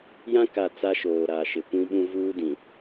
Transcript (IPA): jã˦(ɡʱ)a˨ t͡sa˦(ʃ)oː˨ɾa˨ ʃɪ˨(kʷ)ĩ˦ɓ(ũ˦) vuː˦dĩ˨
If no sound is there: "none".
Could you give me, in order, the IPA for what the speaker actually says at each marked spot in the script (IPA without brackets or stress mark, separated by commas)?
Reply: k, ʃ, kʷ, ũ˦